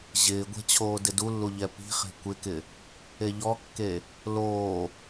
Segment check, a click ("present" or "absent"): absent